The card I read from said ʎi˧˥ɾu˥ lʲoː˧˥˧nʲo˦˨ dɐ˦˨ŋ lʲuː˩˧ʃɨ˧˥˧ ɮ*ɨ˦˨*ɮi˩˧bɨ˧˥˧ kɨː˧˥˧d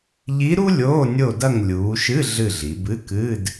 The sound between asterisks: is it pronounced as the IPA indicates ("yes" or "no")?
yes